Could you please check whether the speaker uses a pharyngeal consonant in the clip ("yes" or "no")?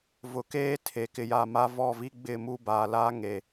no